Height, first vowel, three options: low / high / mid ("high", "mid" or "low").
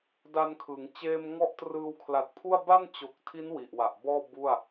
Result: low